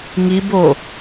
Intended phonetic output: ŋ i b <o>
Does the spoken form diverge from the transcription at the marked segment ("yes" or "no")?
no